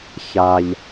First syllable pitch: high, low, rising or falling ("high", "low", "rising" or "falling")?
high